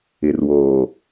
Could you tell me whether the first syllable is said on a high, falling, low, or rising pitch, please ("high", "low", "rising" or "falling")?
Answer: low